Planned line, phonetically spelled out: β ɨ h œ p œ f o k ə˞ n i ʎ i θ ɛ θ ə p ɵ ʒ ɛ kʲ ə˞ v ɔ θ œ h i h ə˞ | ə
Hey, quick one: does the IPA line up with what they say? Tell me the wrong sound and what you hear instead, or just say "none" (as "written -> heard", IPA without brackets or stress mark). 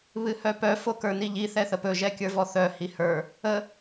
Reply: none